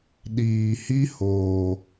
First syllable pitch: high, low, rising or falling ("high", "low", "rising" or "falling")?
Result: low